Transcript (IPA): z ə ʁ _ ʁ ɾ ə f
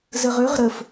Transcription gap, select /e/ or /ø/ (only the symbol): ø